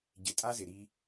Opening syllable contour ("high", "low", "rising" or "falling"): low